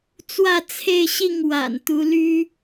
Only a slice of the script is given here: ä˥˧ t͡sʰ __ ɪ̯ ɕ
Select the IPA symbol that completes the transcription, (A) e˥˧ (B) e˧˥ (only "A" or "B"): A